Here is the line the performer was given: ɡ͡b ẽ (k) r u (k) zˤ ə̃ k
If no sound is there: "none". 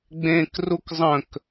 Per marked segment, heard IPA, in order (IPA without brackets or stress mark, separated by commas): k, k